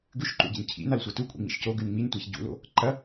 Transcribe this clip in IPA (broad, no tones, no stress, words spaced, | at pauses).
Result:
ɡʉʃǃṵɟḭn cʰḭnalsʷɐ tukʷʼḭŋ͡mḭʃ coɡʉn ŋ͡mintʷaç ɟṵlo̰ | ǃɐ